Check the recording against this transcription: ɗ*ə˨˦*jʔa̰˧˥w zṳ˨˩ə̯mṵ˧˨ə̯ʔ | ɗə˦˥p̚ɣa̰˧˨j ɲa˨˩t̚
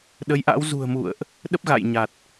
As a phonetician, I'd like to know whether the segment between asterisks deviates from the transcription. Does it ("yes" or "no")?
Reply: no